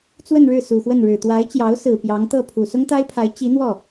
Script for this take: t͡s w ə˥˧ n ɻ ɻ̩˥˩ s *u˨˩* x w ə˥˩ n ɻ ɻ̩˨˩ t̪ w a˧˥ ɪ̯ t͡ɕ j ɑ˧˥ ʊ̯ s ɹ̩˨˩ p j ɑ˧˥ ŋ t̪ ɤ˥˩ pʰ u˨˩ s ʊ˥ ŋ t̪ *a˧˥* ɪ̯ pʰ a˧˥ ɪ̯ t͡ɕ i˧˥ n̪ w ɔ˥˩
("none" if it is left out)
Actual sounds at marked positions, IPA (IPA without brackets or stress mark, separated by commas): u˨˩, a˥